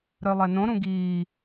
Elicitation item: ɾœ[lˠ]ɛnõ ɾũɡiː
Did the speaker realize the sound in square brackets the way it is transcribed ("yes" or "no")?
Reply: yes